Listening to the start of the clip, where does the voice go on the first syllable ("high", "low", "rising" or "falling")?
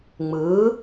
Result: rising